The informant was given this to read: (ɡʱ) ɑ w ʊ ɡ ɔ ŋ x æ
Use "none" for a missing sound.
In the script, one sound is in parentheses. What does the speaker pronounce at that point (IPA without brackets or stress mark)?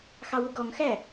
x